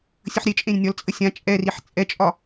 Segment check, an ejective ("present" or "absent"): present